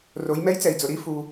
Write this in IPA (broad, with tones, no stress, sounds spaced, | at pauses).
r o˩˧ j m ɛ˧˥ j t͡s ɛ˩ i̯ d͡z ʊ˩ ɾ i˥ f u˩